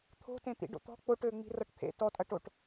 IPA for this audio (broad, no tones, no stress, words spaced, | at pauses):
t̪ʰo̤tẽ t̪ḭɖo̰t̪ɔ̤ k͡poʈø ŋ͡mi̤rʌʈt̪ʰḛ tɔtʼɐʈoʈ